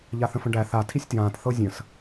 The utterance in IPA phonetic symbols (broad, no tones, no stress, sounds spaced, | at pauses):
ʎ a θ ə̃ f ə̃ ɖ æ θ a tʰ i sʲ t j ãː t θ ɤ zʲ ə̃ s